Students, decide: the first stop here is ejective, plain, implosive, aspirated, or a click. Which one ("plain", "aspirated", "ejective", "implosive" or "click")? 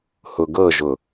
plain